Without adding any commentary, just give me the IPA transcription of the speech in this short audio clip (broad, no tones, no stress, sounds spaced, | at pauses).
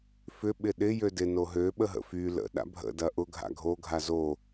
f ʏ ɓ ɪ ɗ ɪ j ø d ɪ n o ɦ ø ɓ ə ɦ ə̰ f y l ə̰ ɗ a̰ bʱ ə̰ d ɐ ʔ ʊ ɡʱ a̰ ɡʱ o ɡʱ a z o